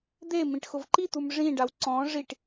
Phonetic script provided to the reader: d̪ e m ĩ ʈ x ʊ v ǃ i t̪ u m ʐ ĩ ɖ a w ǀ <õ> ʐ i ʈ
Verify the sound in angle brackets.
incorrect: ɔ̃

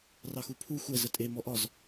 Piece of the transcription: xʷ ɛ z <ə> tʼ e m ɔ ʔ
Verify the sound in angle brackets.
correct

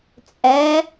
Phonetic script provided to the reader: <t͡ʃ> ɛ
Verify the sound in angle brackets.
incorrect: t͡sʼ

